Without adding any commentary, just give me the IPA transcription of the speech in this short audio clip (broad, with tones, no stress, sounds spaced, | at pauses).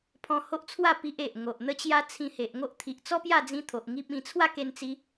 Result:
pʰ ɔ̃˧ h o˦ ʔ t͡sʰ w a˥˧ p i˦ ʔ e˨ ʔ ŋ o˨ ʔ n̪ ə˦ t͡ɕ j a˦ t͡sʰ ĩ˧ h e˨ ʔ ŋ o˦ ʔ t̪ʰ i˨ ʔ t͡s ɔ˦ p j a˥˧ d͡z ĩ˧ t̪ʰ o˨ ʔ ŋ i˦ p̚ ĩ˧ t͡sʰ w a˥˧ k e˧ n t͡s i˧